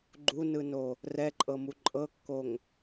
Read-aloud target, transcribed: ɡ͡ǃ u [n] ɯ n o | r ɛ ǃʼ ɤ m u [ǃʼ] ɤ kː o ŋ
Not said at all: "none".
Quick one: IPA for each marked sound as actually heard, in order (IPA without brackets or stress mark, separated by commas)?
n, ǃʼ